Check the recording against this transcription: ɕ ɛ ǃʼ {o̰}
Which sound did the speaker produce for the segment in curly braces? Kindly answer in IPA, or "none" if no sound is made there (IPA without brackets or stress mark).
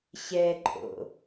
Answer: o̰